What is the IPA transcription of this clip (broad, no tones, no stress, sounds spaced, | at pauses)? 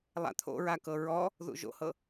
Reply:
lˠ a̰ t̪ʰ o̰ ɹ a k ɤ ɹ ɔ | ð ṵ ʒ o̰ h ɤ